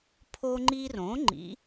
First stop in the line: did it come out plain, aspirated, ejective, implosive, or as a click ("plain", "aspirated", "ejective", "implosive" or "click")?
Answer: aspirated